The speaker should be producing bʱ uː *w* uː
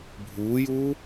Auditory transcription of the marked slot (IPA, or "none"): j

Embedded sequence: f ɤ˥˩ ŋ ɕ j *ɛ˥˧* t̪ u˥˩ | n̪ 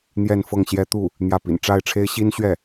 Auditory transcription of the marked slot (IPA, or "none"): ɛ˥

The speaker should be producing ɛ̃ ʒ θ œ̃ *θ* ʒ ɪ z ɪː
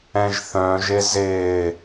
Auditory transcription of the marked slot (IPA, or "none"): none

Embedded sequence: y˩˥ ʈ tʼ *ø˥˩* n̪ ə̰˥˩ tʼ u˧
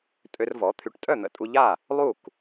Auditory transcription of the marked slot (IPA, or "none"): œ˥˩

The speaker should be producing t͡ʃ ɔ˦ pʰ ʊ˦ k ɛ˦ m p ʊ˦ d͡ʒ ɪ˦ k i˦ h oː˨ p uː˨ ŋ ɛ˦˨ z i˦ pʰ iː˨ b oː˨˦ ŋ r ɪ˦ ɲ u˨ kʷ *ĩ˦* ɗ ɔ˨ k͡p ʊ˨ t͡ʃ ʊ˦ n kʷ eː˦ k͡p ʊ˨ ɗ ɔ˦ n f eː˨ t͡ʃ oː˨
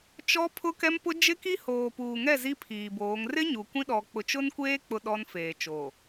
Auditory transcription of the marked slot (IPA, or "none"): ĩ˦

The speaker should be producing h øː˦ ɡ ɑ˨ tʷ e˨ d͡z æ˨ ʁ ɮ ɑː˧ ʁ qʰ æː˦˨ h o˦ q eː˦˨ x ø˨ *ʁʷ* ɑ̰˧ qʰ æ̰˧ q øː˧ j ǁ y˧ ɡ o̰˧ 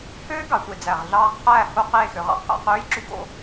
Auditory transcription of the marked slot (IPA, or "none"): ʁ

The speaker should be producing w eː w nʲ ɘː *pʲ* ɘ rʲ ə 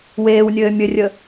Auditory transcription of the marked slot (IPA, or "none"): mʲ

